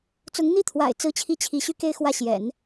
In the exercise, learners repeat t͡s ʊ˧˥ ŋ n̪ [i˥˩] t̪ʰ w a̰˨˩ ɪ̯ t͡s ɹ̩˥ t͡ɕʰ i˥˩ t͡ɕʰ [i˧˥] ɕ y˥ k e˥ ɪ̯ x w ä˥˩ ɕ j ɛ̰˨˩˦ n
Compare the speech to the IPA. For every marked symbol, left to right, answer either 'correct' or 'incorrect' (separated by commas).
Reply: correct, correct